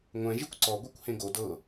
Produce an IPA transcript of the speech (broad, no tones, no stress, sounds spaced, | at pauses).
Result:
ŋʷ ɛ̃ ʒ i kʷ ǀ ɔ ɡʷ ɛ kʷ h ẽ ɡ o d ɤ